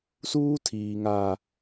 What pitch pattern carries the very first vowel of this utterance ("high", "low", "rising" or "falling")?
high